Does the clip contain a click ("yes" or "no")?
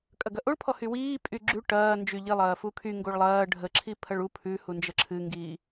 yes